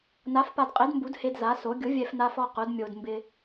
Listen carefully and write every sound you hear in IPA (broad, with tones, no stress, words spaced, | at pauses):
na˨˥fpa˧dqʼe˨˥dmbu˨˥d he˧d za˨˥so˨˥ ɡʲʊ˨˥vʲɛ˧fna˧fɔ˧ qʊ˨˥d mʲo˧d mbɪ˧